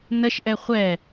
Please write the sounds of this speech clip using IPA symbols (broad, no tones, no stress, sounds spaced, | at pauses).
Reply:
n ə ʃ ʔ ɛ χʷ ɛ